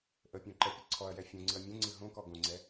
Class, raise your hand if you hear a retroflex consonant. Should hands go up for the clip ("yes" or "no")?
no